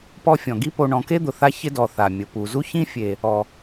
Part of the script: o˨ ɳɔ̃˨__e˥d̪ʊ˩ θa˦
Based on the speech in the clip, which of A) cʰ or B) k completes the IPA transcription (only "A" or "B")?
B